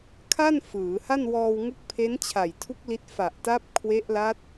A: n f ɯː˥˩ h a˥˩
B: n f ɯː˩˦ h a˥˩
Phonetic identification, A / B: B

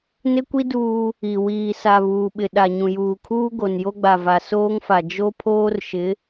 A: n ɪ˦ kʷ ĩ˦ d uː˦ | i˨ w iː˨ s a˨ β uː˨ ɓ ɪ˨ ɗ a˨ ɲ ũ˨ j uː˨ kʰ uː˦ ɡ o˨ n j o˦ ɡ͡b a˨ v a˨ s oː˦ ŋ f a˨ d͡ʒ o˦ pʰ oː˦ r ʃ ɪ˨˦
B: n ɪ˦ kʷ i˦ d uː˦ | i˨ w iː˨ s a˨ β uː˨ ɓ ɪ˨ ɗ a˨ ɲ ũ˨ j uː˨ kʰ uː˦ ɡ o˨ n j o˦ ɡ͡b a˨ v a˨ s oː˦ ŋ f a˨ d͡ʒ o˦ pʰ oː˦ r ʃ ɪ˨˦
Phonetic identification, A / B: B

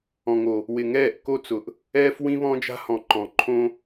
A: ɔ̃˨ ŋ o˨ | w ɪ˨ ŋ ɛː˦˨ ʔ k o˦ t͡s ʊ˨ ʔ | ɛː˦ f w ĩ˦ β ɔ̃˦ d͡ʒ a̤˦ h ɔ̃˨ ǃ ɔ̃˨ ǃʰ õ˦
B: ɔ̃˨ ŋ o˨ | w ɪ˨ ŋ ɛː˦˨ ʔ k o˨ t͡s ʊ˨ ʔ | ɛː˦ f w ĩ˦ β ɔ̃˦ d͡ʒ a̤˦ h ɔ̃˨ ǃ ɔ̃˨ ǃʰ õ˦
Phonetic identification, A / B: A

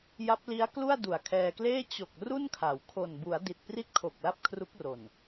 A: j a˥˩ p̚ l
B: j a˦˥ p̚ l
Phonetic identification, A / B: B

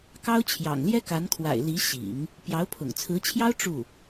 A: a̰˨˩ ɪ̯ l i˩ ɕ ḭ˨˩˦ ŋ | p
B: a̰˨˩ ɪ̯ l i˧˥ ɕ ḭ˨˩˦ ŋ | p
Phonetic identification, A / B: B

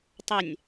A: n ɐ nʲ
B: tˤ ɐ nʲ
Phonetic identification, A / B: B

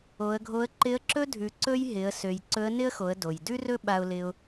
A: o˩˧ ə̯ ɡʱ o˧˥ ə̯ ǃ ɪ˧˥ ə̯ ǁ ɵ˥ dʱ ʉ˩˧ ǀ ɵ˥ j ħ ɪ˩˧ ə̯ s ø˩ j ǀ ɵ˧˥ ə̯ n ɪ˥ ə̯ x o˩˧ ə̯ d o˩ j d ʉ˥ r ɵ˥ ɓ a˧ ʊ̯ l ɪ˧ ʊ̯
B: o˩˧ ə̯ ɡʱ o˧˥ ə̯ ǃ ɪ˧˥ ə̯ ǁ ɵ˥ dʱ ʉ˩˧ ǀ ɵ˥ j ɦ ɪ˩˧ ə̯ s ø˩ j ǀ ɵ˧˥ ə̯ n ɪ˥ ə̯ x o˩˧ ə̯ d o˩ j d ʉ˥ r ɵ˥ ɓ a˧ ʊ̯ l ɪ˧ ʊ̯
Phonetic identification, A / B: B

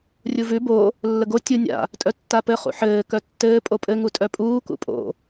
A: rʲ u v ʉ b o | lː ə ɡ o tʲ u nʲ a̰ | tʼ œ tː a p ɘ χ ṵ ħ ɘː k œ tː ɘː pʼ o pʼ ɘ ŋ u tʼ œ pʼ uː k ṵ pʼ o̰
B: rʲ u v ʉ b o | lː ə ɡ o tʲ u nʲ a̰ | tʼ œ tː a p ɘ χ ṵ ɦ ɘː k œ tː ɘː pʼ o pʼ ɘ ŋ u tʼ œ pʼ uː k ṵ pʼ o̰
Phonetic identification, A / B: A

